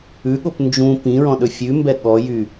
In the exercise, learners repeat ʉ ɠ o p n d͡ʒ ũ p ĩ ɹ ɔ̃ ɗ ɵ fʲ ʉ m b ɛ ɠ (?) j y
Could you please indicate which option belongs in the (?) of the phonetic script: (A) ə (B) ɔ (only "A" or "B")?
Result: B